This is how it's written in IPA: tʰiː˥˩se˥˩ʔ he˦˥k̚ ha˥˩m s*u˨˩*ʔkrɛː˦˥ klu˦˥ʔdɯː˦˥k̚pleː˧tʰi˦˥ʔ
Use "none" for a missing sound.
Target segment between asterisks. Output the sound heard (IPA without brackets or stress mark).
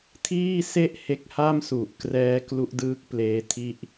u˨˩